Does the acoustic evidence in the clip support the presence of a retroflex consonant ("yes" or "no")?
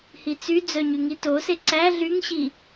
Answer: no